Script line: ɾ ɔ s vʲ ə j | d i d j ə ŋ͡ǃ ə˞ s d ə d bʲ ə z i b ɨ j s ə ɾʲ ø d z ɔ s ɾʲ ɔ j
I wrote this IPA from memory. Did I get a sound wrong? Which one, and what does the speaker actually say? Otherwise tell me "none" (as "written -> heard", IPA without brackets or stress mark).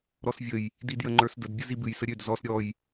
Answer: none